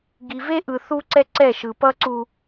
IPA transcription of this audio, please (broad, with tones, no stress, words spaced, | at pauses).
ɡi˨ve˦ʔɯ˨ θu˦ǀɛ˦ǀɛ˦˨ ʃɯ˨pʌ˦ǀu˦